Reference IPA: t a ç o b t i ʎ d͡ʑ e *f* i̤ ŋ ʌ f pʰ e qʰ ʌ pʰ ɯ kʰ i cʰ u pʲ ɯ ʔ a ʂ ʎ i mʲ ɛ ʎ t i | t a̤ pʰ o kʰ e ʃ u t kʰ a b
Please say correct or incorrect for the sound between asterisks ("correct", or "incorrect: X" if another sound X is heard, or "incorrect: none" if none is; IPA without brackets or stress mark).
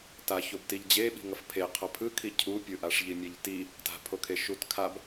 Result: incorrect: ɓ